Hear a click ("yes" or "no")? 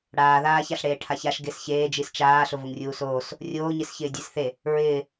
no